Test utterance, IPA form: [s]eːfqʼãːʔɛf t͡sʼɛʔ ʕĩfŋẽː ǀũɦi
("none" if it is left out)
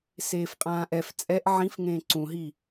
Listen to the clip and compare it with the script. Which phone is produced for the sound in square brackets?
s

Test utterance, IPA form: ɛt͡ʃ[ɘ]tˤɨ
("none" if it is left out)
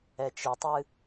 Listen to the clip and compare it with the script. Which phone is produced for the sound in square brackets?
ɘ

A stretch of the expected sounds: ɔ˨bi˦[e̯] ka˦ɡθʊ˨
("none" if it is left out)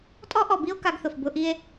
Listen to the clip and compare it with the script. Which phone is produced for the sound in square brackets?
o̯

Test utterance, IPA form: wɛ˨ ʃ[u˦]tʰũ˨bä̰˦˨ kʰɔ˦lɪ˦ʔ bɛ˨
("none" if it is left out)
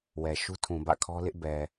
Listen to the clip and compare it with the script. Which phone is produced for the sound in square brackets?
u˦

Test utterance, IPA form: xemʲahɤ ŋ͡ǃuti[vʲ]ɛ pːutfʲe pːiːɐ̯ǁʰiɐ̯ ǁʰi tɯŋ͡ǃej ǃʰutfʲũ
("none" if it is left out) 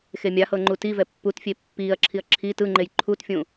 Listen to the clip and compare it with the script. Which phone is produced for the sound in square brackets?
v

